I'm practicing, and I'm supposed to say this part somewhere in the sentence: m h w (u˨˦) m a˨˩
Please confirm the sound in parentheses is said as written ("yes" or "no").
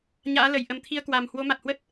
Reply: no